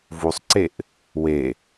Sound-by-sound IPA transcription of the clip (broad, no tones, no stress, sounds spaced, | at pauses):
v u sˤ ǀ e ʔ | w e